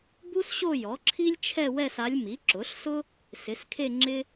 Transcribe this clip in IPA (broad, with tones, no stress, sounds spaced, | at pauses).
b u˥ s ɕ o˥˧ j ɔ˩˥ ǁʰ i˥ lʲ t͡ʃʰ ɛ˥˧ w ɛ˥˧ s a˧˥ lʲ m i˩˥ ǁ ʊ˩˥ ɬ s ʊ˥ | s ɪ˩˥ s kʰ e˥˧ ŋ͡ǁ ɪ˥